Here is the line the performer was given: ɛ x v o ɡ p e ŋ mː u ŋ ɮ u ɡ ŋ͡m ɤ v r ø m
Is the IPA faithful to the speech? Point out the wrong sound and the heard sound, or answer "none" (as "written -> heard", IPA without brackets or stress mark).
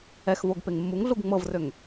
m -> ŋ